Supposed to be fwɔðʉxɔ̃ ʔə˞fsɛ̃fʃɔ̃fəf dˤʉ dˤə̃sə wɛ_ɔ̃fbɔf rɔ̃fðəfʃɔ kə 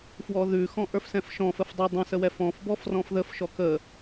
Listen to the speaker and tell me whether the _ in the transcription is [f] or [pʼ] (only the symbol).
f